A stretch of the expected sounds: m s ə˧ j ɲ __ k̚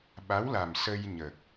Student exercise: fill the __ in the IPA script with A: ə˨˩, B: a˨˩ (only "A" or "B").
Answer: A